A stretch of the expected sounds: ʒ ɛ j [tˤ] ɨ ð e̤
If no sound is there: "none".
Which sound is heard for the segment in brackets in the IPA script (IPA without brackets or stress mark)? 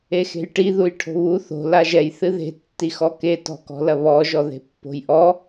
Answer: θ